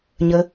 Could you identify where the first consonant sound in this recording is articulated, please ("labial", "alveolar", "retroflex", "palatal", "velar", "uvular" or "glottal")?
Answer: palatal